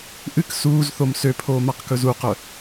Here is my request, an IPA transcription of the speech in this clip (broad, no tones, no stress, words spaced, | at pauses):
ʔɨk suːzθom søpʰoː maqkɵzuqœ